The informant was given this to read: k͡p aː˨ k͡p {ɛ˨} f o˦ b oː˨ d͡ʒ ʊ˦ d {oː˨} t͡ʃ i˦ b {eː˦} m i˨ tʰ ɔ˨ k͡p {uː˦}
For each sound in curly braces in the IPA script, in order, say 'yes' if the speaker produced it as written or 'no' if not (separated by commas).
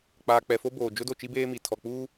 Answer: yes, no, yes, yes